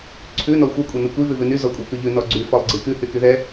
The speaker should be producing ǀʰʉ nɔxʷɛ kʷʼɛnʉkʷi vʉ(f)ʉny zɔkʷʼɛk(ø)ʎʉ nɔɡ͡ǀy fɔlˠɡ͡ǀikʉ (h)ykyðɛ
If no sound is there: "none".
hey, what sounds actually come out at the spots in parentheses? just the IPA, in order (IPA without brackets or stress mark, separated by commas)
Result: v, ʉ, h